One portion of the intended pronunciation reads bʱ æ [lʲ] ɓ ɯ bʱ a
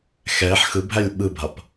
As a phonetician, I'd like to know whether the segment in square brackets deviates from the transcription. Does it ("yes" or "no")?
no